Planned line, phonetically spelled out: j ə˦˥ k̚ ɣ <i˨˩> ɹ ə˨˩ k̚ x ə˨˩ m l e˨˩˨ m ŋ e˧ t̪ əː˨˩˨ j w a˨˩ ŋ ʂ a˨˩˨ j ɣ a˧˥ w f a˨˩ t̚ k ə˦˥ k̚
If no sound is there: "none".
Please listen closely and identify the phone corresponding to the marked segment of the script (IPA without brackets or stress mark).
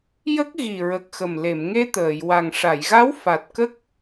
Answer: i˨˩